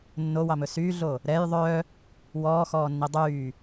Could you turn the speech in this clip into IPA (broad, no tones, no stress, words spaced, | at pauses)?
nːowɑmɵ syːɮo | ɾɛj ðˤœ | wɔːxɔːnːi dˤyː